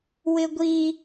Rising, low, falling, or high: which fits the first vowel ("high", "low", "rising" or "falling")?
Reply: high